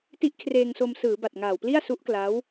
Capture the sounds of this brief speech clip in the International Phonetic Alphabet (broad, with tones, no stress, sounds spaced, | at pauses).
t i˦˥ ʔ kʰ r eː˧ ŋ s o˧ m s ɯː˩˦ b a˨˩ t̚ ŋ aː˨˩ w p l i˥˩ a̯ s u˦˥ ʔ k l a˦˥ w